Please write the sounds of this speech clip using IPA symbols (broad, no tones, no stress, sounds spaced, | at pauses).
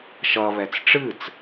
ʃ ʌ β ɛ t͡s ʈ͡ʂ ɨ t͡s